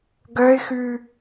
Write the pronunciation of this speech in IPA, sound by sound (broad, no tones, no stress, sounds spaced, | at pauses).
ɡ œ ɪ̯ x ʉ